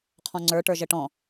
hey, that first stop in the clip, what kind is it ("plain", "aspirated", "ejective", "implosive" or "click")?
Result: aspirated